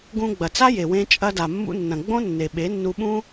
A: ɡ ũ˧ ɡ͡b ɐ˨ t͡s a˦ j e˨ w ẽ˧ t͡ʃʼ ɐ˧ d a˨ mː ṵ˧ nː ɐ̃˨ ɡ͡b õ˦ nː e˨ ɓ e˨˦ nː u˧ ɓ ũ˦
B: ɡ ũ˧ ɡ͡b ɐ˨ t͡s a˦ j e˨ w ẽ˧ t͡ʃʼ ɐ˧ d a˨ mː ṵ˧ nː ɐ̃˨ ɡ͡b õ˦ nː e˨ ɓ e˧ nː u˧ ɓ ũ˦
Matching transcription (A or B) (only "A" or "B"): A